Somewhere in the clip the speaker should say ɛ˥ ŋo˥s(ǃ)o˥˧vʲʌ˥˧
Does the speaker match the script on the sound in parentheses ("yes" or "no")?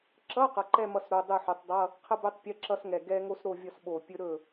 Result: no